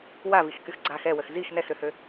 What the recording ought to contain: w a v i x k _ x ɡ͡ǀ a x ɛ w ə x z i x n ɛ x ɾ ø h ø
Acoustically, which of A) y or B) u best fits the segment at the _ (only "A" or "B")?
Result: A